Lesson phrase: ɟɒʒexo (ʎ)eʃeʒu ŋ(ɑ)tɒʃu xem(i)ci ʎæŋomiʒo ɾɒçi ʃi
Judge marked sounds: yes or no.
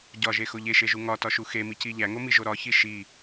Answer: yes, no, yes

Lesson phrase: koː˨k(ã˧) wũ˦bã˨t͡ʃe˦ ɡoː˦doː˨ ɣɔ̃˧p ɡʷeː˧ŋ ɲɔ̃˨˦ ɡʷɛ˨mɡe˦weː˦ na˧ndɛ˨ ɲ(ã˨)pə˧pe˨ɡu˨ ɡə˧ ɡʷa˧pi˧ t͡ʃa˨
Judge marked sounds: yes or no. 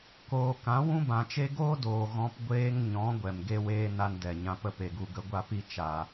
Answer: no, yes

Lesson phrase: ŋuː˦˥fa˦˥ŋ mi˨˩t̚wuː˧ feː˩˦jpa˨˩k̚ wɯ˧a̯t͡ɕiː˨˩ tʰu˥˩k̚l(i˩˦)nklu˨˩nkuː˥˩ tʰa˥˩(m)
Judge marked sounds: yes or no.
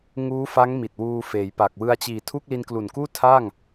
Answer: no, no

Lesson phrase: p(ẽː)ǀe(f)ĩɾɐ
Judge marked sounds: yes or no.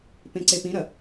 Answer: no, no

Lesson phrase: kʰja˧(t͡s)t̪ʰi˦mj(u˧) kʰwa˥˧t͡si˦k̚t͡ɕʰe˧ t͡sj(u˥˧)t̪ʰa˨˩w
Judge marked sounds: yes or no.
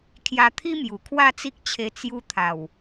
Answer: no, no, no

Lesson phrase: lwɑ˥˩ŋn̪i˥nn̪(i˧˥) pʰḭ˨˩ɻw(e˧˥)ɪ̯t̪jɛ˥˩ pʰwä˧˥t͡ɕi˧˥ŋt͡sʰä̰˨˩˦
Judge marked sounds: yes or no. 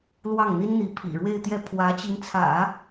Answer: yes, no

